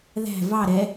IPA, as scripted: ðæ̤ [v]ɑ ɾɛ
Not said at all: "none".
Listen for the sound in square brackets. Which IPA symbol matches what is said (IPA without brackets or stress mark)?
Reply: v